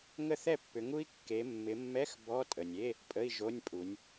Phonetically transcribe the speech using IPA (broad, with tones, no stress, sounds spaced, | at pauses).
ŋ ə˥˨ θ ɛ˥˨ pː ʏ˨˦ ŋ u˦˥ i̯ kː e˨˦ mː ɪ˨˦ mː ɛ˧˥˧ x b ɔ˧˥˧ tʼ ə˩ nʲ e˧˥˧ | pʼ ə˧˥˧ i̯ ʒ o˧˥˧ nʲ pʼ u˨˦ nʲ